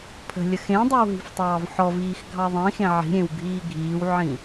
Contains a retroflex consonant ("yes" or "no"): no